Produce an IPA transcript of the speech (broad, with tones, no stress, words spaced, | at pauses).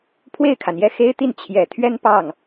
pʰwe˥˩ɪ̯kʰa˩njɛ˥˩ xe˥ɪ̯t̪i˥˩n t͡ɕʰjɛ˨˩t̪ʰɥɛ˥n pɑ˥˩ŋ